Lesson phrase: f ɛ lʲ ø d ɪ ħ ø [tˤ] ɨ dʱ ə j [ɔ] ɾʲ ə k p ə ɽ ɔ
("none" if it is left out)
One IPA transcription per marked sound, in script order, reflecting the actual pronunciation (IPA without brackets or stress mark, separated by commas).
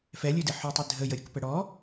tˤ, ə